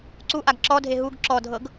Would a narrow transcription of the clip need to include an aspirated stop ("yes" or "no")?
no